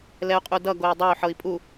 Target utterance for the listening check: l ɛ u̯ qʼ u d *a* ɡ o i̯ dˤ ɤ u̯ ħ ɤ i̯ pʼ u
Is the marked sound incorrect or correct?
incorrect